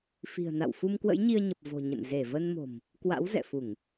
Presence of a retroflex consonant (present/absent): absent